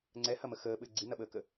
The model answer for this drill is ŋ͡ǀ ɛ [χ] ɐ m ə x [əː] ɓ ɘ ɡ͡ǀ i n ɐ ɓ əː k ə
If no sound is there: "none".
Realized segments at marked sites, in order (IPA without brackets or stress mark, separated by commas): h, əː